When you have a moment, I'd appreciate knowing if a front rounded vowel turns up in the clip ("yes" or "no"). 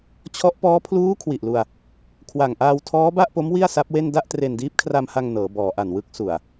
no